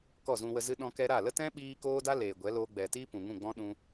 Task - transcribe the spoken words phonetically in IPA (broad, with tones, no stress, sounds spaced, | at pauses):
k ɔ˦˨ z ũ˧ w ə˧ z ɨ˧ ɗ ɔ̃˧ k ɛ˧ ɾ a˦˨ l ə˦ t ɛ̃˦ ɓ iː˧ k oː˦ d a˦ l eː˨ ɡʷ ɛ˨˦ l oː˧ ɡ͡b ɛ˨ t iː˦ p ũ˨ ŋ ũ˦˨ ɡ͡b ɔ̃˦ ɗ ũ˧